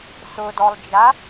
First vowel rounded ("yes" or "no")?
yes